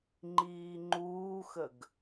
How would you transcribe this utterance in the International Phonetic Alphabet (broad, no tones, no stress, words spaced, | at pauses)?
ŋ͡ǃiːŋ͡ǃuːxəɡ